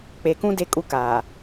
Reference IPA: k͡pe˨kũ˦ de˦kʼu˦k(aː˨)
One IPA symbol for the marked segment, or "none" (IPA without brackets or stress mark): aː˨